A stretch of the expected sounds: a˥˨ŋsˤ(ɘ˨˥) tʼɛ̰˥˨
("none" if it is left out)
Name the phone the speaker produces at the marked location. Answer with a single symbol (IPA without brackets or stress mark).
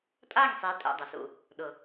e˨˥